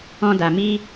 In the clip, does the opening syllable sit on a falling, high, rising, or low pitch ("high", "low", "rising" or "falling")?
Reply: high